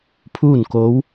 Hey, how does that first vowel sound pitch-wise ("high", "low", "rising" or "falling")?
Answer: falling